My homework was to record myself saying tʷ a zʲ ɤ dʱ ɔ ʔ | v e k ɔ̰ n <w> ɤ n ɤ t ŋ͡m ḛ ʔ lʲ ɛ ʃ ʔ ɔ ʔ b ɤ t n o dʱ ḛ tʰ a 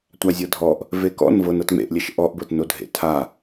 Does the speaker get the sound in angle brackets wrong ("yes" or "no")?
yes